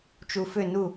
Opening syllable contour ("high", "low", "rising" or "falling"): low